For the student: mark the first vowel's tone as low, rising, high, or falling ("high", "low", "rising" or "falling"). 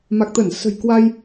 low